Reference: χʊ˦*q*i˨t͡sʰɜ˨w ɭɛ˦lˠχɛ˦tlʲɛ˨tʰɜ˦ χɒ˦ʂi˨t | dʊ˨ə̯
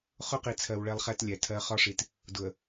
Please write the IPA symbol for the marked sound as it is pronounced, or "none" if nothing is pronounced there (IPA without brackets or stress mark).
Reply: q